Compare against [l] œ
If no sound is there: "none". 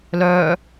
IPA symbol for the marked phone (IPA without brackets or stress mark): l